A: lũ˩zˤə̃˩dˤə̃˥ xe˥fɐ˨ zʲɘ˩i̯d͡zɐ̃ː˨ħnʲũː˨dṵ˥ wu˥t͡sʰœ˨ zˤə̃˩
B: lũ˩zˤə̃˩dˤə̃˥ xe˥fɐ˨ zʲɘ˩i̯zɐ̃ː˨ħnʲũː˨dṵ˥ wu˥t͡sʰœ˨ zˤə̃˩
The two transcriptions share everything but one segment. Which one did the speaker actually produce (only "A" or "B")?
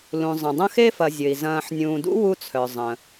B